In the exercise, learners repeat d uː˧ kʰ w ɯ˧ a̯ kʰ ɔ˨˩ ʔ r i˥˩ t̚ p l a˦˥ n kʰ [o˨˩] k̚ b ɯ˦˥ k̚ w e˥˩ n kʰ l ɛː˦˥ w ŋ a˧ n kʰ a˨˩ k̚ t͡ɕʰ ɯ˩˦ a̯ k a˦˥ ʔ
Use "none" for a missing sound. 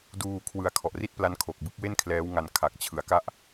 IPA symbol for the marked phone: o˨˩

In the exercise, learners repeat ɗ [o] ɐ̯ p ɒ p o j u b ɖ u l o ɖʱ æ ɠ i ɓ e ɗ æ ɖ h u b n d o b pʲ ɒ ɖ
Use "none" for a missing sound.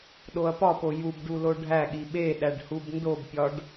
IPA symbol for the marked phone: o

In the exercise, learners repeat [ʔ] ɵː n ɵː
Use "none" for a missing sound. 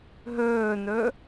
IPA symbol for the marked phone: ɦ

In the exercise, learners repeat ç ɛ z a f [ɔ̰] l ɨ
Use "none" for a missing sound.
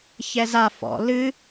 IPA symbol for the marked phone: ɔ̰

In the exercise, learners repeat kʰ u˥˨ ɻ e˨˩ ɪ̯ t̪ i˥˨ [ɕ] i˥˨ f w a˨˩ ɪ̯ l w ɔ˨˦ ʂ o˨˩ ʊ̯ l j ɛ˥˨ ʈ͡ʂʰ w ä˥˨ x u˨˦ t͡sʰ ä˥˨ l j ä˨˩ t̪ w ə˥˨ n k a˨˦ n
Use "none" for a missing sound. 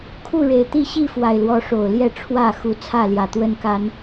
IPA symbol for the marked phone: ɕ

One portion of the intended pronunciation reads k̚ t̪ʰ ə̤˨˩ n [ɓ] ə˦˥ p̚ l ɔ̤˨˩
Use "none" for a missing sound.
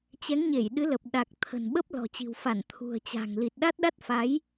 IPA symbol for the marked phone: ɓ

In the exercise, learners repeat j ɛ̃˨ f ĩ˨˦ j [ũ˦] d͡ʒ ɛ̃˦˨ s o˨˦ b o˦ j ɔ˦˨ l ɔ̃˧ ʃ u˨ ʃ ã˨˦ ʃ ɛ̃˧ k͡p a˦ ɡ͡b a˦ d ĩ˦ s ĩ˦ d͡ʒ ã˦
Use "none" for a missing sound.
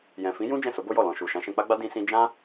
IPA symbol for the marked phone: ũ˦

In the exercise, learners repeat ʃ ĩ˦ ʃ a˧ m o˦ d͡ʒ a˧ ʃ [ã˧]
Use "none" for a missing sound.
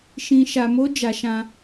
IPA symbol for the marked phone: ã˧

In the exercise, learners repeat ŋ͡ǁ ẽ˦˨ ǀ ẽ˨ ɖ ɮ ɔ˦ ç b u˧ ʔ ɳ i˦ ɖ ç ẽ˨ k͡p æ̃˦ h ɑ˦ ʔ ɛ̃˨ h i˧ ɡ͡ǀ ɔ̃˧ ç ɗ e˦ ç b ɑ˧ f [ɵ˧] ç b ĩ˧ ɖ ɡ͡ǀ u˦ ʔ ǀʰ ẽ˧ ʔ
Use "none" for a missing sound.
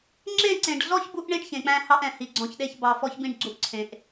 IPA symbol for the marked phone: ɔ˧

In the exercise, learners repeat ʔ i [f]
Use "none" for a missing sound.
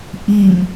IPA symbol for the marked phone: m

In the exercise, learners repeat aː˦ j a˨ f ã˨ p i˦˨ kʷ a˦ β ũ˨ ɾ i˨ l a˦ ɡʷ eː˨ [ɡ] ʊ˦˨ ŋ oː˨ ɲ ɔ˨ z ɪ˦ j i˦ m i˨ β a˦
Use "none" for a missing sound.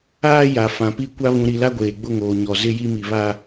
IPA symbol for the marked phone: ɡ͡b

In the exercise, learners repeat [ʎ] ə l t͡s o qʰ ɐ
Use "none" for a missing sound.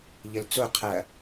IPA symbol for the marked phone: ʎ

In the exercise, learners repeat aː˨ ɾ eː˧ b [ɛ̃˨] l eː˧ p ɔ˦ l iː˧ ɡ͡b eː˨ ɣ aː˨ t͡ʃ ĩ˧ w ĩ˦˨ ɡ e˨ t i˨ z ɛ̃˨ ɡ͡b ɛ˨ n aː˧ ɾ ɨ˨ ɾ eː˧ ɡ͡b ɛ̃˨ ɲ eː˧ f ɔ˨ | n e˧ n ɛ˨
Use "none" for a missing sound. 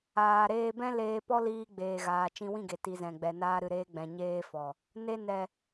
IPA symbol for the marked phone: ɛ̃˦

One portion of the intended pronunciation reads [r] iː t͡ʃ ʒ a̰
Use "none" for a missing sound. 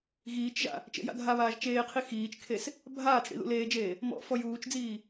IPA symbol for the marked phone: ɣ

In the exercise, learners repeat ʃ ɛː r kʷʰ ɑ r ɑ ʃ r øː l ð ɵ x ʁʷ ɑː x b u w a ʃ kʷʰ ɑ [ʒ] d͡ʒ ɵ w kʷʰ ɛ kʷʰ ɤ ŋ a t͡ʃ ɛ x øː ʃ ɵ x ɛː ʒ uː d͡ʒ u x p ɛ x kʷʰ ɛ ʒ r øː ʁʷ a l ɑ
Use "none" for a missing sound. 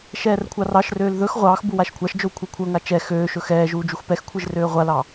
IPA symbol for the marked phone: ʃ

